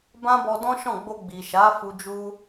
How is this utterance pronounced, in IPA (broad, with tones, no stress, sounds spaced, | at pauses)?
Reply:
b ã˦ b ɔ˧ d ɔ̃˦ ʃ ɔ̃˦˨ ɡ͡b o˧ ɡ͡b i˨ ʃ a˨˦ f u˧ d͡ʒ u˦